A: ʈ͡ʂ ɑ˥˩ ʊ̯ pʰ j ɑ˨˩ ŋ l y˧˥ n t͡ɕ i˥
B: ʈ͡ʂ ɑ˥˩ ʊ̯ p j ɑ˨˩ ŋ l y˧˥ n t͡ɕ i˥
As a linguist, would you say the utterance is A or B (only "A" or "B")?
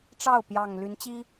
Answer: B